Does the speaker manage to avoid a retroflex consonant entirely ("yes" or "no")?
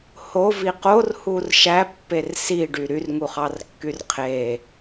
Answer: no